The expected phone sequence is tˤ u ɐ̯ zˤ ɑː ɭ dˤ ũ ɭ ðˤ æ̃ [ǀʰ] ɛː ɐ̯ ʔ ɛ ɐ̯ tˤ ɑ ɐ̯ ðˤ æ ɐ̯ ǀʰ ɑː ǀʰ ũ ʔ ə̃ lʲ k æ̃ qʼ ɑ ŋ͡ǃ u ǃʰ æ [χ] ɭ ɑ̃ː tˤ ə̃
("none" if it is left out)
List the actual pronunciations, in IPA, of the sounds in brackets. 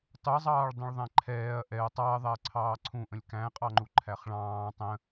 ǃʰ, χ

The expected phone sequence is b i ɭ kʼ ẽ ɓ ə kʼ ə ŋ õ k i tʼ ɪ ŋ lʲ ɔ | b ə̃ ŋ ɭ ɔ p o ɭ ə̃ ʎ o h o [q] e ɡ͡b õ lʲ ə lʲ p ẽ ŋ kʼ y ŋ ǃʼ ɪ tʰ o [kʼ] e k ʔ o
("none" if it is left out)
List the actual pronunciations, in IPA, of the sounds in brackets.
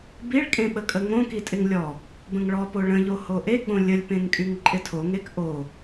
ʔ, ŋ

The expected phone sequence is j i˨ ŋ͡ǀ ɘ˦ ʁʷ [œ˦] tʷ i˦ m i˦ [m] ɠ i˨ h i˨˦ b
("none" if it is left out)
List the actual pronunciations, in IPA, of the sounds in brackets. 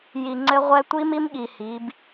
ɛ˦, m

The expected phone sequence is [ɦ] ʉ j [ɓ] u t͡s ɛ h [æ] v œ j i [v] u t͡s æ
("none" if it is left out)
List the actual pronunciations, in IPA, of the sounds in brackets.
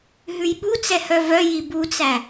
ɦ, ɓ, œ, b

